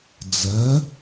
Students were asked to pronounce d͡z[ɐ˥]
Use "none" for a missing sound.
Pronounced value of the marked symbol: ɐ˩˧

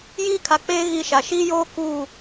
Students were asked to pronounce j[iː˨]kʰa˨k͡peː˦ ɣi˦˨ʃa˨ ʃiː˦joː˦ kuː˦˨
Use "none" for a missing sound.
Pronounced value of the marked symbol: iː˦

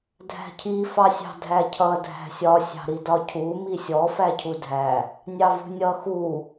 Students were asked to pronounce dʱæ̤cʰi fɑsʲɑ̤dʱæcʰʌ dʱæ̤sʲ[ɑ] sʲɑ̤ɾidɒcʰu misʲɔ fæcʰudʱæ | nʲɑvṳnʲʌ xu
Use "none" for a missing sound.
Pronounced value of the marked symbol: ɒ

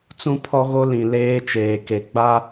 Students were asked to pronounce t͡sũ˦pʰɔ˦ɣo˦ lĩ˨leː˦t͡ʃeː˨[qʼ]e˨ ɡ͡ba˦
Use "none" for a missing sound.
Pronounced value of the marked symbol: k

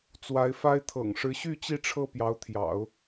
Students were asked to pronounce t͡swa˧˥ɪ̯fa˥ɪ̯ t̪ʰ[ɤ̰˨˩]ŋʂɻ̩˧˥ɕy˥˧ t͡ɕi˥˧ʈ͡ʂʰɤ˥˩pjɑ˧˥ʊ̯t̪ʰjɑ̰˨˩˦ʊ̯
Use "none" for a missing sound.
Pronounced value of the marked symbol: ɤ̰˨˩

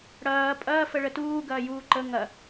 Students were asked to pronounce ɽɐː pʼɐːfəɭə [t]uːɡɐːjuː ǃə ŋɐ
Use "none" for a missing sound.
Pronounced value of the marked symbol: t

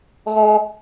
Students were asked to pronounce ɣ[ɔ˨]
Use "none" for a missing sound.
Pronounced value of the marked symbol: ɔ˦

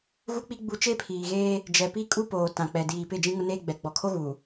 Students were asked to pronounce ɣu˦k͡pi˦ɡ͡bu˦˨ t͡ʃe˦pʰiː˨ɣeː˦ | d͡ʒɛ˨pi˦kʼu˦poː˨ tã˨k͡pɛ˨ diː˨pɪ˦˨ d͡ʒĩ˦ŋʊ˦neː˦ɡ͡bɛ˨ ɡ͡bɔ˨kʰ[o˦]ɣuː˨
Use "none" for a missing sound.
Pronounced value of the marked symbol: o˦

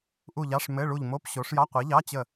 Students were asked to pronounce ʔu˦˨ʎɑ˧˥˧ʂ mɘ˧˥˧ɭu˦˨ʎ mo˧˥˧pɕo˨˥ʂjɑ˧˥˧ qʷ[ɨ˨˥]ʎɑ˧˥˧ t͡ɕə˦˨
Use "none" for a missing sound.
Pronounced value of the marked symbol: i˨˥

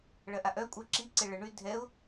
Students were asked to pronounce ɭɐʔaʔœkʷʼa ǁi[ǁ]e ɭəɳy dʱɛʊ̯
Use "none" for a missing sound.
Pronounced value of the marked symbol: ǀ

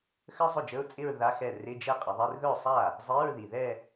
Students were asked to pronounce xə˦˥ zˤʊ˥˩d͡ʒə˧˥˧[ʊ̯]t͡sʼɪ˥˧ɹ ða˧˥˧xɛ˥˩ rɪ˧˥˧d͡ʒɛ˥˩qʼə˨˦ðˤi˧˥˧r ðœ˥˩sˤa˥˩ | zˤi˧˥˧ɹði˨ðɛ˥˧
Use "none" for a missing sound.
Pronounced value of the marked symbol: ʊ̯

